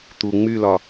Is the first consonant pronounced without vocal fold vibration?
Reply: yes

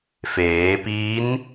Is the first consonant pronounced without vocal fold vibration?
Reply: yes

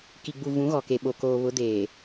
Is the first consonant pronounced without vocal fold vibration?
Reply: yes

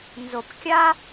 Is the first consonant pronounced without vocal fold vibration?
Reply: no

